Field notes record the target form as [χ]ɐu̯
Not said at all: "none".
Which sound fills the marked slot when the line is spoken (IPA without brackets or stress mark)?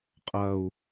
qʼ